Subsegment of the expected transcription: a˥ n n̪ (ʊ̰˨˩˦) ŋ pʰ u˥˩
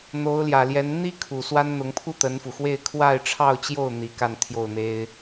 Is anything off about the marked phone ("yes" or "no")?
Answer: yes